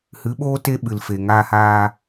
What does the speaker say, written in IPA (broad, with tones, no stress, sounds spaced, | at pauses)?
h ɨ˨˦ ɓ oː˦ t e˦ ɓ ɨ˨ l f e˨ ŋ aː˧ h aː˧